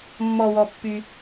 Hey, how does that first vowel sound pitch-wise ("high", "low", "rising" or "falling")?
low